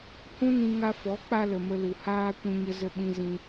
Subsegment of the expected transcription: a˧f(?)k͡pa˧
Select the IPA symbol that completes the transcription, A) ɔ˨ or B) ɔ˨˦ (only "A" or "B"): B